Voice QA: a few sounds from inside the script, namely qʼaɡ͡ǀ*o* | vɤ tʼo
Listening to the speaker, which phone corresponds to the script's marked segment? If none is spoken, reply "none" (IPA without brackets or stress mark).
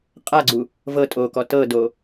u